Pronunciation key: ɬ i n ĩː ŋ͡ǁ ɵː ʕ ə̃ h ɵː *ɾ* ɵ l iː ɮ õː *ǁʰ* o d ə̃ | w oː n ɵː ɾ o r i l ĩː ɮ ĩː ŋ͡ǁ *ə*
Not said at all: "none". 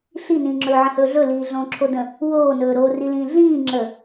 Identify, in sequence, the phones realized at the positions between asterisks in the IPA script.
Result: ɮ, ǁʰ, ə

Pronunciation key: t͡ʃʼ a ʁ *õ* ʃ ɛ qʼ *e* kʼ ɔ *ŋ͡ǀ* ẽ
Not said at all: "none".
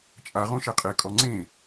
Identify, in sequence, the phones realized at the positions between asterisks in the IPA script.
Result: õ, e, ŋ͡ǀ

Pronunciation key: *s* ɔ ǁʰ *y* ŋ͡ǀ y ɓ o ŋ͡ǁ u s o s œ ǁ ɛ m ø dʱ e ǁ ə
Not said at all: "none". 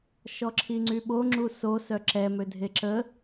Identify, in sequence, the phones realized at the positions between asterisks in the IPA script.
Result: ʃ, i

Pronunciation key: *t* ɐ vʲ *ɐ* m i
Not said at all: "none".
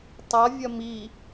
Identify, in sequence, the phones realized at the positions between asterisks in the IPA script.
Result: tˤ, ɐ

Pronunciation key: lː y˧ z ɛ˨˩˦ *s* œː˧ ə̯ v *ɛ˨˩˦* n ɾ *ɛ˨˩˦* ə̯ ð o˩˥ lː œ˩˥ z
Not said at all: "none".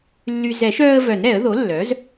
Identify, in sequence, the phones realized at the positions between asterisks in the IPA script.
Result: ʃ, œ˨˩˦, ɛ˨˩˦

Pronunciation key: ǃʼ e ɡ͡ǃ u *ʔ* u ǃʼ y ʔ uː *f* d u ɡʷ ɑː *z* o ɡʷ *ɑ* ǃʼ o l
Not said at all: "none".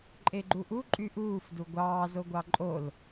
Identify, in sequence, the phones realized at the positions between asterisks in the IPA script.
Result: ʔ, f, z, ɑ

